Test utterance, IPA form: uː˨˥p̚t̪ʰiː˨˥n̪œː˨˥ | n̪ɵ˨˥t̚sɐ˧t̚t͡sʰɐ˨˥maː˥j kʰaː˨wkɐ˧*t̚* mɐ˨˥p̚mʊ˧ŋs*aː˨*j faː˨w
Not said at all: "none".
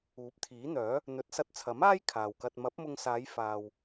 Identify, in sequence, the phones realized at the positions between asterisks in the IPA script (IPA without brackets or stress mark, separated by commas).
t̚, aː˨˧